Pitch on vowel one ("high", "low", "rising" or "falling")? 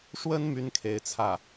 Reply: high